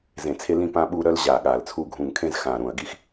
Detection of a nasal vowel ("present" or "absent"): present